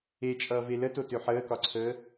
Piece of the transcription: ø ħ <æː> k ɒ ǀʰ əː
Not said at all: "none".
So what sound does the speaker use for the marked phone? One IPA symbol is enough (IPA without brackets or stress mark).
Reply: əː